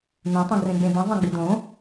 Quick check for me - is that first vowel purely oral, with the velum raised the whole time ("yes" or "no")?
no